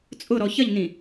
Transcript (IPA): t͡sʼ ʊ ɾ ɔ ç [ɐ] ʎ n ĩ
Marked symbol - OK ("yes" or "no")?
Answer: yes